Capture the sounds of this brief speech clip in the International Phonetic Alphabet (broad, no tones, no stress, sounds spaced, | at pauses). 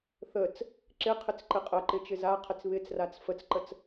θ ə t͡s | ǁ ɪ qʰ ɪ t͡s ǃ ɪ qʼ ə ǃ ɪ t͡ʃ ɪ z a qʰ ɪ t͡s β ɪ t͡s r a t͡s f ə t͡s ǃ ə t͡s